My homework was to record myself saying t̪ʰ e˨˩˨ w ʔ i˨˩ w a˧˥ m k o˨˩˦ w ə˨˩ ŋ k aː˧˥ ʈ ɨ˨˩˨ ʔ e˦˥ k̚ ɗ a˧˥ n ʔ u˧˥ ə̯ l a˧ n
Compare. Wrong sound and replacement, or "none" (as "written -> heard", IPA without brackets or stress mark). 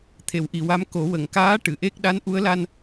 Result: none